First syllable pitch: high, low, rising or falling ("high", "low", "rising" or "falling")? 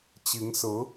rising